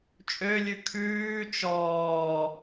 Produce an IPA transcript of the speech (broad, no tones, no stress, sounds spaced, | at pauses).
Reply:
t͡ʃʼ ø lʲ ʉ kʰ ʉː t͡ʃ ɔː